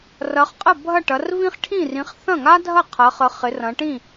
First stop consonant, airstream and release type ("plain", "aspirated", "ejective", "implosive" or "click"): ejective